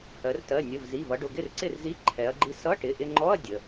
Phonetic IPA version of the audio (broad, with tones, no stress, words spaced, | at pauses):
hɜ˩˧rtɜ˩˧˩ nʲə˩˧˩vzi˩˧˩vʌ˩˧ɖʊ˩˧˩ ɡɪ˥˩rǀɪ˥˩rzi˧˥˧ ǃʰɛ˩˧ɐ̯ɡ͡ǃi˧ sʌ˧˥˧ʈɪ˩˧˩ʔɪ˧ŋ͡ǃɔ˧˥˧ɐ̯ dʲə˩˧˩